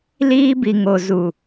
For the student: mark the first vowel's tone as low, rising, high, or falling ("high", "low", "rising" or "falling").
high